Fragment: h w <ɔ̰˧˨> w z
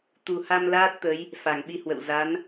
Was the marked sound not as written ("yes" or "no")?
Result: yes